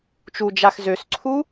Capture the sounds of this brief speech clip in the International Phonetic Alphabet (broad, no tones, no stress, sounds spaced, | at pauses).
t͡ʃ u d͡ʒ a x z ø s ǀʰ u